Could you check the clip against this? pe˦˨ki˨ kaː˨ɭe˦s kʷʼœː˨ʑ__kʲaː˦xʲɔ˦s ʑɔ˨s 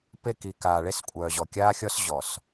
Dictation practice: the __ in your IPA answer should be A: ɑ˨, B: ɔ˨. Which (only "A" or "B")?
B